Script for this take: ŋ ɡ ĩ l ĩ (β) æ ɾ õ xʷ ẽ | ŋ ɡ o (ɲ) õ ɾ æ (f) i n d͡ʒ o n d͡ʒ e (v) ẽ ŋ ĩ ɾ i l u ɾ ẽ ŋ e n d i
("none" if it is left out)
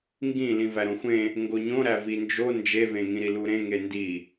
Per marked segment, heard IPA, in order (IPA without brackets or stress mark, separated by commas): v, ɲ, v, v